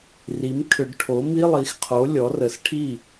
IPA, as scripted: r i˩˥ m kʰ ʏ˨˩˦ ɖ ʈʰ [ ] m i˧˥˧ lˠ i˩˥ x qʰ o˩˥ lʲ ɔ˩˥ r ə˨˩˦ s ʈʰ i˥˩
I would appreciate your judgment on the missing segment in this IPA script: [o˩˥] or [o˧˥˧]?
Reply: o˩˥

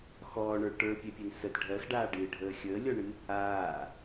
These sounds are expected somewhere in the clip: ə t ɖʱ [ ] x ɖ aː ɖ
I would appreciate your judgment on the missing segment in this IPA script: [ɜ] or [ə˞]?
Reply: ɜ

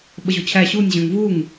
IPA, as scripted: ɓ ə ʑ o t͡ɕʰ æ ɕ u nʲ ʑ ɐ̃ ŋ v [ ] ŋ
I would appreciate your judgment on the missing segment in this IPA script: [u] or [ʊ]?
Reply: u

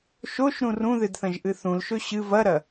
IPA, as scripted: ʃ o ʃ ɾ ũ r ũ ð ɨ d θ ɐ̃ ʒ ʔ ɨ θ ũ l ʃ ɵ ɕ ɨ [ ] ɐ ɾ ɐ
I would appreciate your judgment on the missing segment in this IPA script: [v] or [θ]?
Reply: v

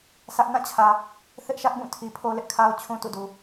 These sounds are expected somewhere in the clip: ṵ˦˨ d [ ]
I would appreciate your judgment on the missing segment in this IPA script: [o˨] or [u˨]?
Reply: u˨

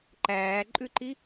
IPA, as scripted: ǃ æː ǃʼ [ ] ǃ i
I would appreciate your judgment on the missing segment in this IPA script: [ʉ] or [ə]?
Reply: ʉ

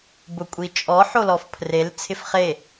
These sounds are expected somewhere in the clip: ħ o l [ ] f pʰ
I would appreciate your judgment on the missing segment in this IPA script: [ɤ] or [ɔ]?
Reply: ɔ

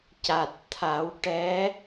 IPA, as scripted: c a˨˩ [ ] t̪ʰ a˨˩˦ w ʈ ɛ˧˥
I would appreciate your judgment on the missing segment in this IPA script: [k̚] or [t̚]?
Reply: t̚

